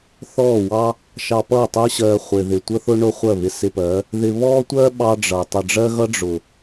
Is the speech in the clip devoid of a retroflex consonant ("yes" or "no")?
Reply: no